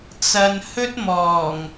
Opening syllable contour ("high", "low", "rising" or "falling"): low